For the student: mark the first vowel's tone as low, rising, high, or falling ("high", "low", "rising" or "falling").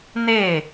falling